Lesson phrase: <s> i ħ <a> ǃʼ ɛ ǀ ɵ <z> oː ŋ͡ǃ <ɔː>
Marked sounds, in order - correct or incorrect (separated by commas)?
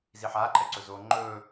incorrect, incorrect, correct, incorrect